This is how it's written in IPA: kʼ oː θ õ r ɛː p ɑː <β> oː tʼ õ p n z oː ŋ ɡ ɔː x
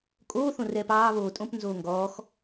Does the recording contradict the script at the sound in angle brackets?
no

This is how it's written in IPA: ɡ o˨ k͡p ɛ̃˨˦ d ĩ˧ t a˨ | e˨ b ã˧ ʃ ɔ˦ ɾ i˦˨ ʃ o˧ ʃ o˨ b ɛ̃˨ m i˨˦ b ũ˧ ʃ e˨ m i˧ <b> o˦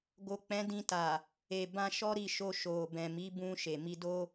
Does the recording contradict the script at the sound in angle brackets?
yes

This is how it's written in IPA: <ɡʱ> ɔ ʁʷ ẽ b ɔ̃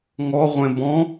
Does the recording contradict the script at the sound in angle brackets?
yes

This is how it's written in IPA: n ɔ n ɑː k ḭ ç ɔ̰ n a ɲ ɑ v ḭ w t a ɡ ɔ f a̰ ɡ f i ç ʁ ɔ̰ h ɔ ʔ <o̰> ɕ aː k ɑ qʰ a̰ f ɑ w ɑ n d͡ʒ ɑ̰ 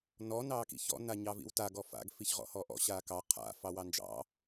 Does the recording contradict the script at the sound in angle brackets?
yes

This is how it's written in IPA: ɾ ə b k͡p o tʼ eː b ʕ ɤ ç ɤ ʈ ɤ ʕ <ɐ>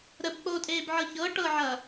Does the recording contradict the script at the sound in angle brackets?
no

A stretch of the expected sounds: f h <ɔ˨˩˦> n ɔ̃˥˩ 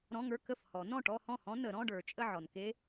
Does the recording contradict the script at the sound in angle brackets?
no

